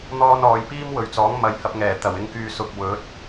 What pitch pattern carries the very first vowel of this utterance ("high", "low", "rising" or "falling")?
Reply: high